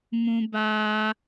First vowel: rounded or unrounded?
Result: rounded